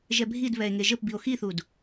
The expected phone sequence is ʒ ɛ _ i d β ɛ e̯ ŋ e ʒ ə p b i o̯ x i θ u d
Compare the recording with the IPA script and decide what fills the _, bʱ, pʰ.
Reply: bʱ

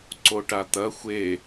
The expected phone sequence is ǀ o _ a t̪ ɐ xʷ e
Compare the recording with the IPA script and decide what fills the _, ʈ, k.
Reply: ʈ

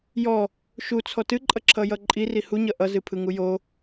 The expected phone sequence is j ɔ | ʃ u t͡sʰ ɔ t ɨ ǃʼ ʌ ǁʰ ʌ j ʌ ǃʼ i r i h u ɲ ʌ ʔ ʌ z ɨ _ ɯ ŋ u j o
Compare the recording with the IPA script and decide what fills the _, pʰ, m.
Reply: pʰ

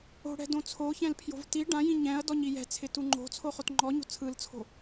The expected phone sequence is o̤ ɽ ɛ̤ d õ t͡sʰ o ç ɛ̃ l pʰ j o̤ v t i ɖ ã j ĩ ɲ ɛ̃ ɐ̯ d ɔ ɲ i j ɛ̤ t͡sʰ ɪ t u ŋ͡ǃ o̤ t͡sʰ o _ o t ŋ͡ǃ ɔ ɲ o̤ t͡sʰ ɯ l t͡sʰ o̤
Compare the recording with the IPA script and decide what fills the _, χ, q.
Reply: χ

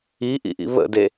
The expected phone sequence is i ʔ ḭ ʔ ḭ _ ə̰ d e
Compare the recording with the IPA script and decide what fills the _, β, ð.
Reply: β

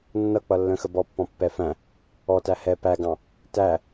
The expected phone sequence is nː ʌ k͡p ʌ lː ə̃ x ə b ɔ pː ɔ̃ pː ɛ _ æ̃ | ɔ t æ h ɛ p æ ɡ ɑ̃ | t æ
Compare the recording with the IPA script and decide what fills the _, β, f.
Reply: f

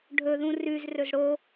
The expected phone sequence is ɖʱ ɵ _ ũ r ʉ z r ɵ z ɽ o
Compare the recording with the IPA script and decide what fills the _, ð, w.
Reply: ð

